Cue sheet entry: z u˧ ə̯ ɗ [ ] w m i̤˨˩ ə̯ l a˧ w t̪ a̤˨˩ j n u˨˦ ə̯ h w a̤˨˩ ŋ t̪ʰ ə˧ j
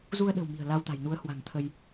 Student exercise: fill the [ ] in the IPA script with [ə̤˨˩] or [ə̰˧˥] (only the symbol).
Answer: ə̤˨˩